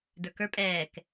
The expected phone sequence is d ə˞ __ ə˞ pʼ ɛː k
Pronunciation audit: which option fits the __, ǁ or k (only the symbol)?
k